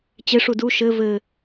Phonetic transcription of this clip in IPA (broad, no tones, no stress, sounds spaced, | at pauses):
t͡ɕ e ʂ u d u ʃ ɘ v ɘ